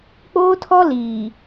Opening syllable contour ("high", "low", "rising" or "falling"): high